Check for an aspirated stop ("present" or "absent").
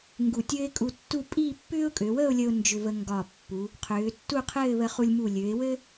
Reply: present